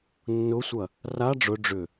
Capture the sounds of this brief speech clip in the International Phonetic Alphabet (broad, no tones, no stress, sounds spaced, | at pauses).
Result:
nː ʊ sʷ ɐ | r a ɖ͡ʐ ʊ ɖ͡ʐ ʏ